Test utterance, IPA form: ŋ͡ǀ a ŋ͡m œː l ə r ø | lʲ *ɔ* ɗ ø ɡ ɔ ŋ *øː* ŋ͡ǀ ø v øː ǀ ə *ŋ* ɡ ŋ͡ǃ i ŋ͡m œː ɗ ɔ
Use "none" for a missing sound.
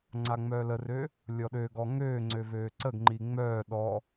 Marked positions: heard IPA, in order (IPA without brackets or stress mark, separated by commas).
ɔ, øː, none